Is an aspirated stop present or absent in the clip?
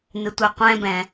absent